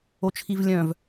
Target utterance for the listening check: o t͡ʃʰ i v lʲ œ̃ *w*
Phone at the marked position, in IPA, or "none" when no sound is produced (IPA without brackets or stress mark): v